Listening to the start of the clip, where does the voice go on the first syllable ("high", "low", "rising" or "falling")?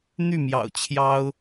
falling